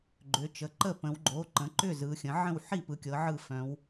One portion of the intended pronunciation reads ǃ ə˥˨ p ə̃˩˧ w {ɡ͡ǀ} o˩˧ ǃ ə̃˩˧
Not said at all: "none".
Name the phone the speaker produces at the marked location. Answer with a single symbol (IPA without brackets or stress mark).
ɡ͡ǃ